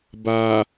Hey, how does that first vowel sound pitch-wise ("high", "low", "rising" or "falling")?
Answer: low